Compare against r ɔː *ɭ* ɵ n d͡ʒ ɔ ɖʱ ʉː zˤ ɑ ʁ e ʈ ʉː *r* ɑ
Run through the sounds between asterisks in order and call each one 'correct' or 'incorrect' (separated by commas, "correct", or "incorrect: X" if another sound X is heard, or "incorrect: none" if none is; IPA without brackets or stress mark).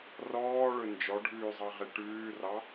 correct, correct